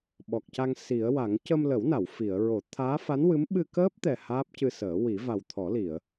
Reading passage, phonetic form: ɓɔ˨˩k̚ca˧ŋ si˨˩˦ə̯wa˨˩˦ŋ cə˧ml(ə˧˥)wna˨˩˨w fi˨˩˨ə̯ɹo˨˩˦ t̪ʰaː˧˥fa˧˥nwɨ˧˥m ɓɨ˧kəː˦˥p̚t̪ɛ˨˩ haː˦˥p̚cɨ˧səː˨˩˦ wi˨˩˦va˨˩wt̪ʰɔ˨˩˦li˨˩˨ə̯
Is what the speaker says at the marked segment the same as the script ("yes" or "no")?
no